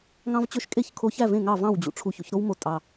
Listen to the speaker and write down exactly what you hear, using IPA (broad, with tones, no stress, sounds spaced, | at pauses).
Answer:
ŋ ɑ̃˥ v t͡ɕ ø˥ ʃ kʼ e˥˩ ç kʰ o˧ ç æ˥˩ v ẽ˥˩ ŋ ɑ˥˩ v ɑ̃˥˩ w d͡ʑ ṵ˩ ʈ͡ʂʰ u˧ ç o̰˩˥ ç ɾ o˥ w m o˧ tʼ ɑ˩